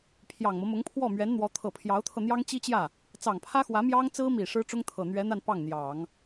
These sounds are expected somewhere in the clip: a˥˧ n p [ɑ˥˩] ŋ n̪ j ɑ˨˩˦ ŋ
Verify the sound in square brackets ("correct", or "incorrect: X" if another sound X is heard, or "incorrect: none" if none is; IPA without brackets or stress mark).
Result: correct